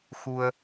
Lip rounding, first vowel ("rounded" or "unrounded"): rounded